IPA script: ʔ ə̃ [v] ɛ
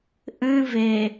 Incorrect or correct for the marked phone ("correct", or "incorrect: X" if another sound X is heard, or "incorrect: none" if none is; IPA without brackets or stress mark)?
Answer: correct